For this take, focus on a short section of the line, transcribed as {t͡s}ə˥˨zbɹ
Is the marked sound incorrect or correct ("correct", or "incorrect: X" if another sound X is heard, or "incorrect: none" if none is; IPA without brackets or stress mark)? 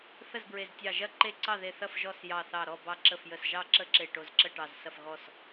incorrect: θ